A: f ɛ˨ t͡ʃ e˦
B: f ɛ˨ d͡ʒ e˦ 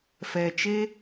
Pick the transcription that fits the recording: A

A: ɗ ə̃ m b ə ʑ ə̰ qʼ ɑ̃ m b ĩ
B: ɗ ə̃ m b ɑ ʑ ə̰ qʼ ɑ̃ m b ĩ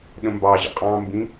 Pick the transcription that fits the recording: B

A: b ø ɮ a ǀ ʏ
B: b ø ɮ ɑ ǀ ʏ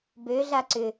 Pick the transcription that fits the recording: A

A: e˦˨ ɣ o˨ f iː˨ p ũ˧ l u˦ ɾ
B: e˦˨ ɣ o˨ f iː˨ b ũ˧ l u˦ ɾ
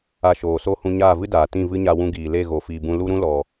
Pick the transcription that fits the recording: B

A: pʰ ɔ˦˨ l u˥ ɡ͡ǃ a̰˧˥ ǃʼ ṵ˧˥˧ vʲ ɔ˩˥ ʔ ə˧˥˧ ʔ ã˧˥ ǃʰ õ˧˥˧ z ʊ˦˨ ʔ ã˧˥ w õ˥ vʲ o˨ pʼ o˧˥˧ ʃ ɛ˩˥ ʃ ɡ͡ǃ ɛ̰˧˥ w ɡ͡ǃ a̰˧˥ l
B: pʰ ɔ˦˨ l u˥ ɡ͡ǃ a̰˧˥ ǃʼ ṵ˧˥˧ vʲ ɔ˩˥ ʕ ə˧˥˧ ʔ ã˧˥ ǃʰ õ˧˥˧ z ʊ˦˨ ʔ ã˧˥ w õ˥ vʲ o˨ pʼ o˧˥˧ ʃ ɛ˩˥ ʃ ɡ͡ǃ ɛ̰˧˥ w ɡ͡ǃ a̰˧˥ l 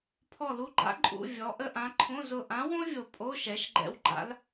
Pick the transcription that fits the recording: A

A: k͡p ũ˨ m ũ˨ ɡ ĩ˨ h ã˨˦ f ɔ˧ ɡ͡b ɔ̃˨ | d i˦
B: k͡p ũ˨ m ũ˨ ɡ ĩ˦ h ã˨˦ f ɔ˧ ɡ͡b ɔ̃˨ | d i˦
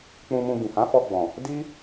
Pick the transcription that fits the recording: A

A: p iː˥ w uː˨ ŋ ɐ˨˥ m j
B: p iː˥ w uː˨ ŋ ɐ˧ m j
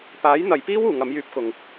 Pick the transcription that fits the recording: A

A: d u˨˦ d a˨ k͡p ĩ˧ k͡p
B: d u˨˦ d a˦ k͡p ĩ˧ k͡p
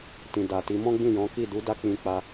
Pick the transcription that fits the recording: B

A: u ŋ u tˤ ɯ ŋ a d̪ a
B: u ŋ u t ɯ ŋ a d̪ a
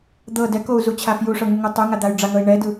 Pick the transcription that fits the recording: A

